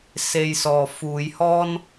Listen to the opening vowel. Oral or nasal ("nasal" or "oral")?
oral